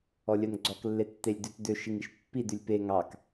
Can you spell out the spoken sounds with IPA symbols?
ɔ lʲ œ n ɡ͡ǀ ɔ k lː e tː e lʲ d ʉ t d ø ʃ i ŋ i ʃ pː i d ʉ lʲ p e ŋ ɑ k

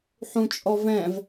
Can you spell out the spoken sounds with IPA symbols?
ħ ũ t͡ʃʼ ɔ v ɛ̃ v

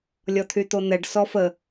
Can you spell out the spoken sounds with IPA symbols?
lʲ ɔ t̪ʰ y t̪ o n̪ ɛ ɖ s ɔ f ə

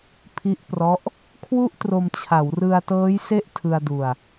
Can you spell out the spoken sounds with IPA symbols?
pʰ i˦˥ ʔ p r ɔ˦˥ ʔ | kʰ w u˥˩ ʔ t r o˧ m t͡ɕʰ a˩˦ w r ɯ˧ a̯ t ɤː˦˥ j s e˥˩ ʔ tʰ ɯ˧ a̯ d u˧ a̯

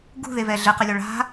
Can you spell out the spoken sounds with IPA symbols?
ɡ ṳ ð e v ɛ ɮ ɘ q ɘ lʲ ɔ ɭ a̤

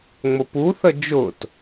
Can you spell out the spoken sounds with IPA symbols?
ŋ͡m o p u θ ə d͡ʒ ʊ t

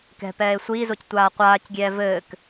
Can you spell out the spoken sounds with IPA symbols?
k ɛ̤ p ɛː e̯ sʷ iː z o c tʷ aː qʷ aː c ɡʲ ɛː v ɘː k

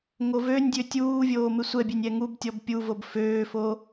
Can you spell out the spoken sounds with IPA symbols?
ŋ o v ø nʲ dʲ ø tʲ uː vʲ oː m ɪ sʷ ɛ bʲ ø nʲ ɛ ŋ u b tʲ ɔ b pʲ u v o b f øː f o

